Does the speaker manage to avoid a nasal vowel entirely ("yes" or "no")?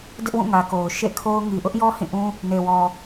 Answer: no